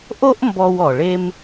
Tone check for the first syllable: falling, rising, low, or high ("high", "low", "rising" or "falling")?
high